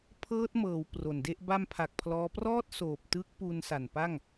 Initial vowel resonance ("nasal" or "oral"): oral